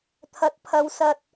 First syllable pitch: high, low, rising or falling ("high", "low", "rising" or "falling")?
rising